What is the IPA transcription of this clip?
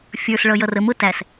fʲ ə˞ s ɭ ʌ j ʌ r ə m ʊ t æ s

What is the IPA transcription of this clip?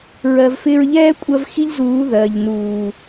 ɹ ɜ˨ v f ɪː˧ ɹ ʎ ɛː˦ kʷʼ ɜ˧ v x i˦ ʎ z uː˨˦ ð ɜː˨ ʎ n uː˨

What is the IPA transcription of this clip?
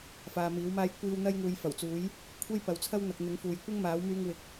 f aː˨ m iː˨˥ w m aː˥ j kʷ iː˧ w n̪ ɐ˥ j ŋ uː˨˧ j f ɐ˨˩ w t͡s uː˨˥ j | kʷʰ e˥ j p ɐ˨ w t͡sʰ ɐ˥ w n̪ ɐ˨ k̚ n̪ ɪ˨˥ ŋ f uː˨ j kʷ ɪ˥ ŋ m aː˨˥ w m yː˧ ŋ w ɪ˨˥ k̚

